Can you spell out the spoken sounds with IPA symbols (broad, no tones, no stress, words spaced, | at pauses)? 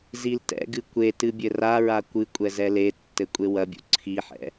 ziltɛ̰ɡɨ kʷetɨ bʲɘraɹa kʷɨ kʷʼɛzɛletːɘ kʷʼewɐbʲṵ ǀʰiħɛ̰